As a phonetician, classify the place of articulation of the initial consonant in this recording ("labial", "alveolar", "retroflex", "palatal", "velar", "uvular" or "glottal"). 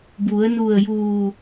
labial